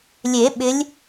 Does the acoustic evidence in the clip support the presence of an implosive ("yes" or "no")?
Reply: yes